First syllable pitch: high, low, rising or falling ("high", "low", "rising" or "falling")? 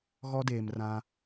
high